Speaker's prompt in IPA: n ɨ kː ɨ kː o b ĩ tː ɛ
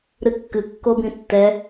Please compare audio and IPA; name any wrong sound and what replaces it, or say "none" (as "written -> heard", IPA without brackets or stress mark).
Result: n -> ɾ